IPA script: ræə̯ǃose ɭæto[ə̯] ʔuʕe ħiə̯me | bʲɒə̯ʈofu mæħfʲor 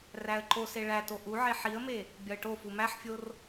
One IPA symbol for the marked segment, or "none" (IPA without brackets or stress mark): none